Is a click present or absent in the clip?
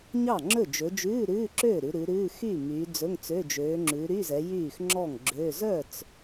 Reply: present